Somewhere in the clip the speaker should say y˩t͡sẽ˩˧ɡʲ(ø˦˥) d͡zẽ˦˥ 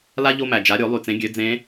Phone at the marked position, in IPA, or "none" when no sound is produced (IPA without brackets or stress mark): ø˩˧